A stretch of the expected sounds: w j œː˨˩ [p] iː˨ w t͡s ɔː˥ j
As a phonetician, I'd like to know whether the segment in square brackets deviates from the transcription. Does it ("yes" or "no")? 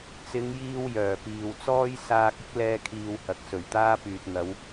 no